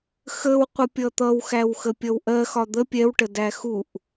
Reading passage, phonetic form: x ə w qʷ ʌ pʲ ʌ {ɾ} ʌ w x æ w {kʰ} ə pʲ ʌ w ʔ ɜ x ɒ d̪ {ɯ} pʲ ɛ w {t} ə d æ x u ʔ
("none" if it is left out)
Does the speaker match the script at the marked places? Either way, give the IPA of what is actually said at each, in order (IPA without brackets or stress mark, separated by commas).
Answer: t̪, x, ə, ʈ